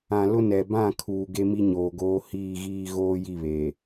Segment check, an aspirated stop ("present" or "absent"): present